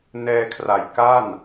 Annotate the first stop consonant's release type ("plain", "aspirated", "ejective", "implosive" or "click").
aspirated